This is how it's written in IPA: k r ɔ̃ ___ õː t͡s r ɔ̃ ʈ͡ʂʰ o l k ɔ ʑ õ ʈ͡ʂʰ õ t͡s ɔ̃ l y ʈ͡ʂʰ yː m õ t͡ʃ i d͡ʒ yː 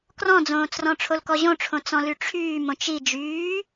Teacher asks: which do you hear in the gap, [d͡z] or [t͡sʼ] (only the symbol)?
d͡z